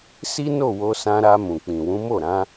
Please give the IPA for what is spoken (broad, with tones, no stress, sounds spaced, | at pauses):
s i˦ n o˦˨ w o˧ s ã˧ ɾ a˧ m ũ˨ k͡p ĩ˨ w ũ˨˦ m o˦˨ ɾ ã˨˦